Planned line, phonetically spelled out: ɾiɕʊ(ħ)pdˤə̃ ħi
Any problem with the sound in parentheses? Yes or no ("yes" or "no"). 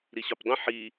yes